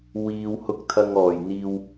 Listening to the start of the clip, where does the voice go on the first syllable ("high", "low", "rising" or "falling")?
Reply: low